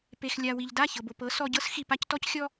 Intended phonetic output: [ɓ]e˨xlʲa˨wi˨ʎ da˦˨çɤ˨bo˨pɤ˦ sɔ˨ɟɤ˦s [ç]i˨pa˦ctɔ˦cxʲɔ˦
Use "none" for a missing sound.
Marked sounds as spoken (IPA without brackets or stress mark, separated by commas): p, x